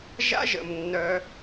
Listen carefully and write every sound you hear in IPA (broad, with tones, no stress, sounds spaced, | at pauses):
ʒ a̰˦ ʒ ə̰˨ m nː œ˧